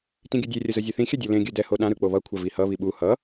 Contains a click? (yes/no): no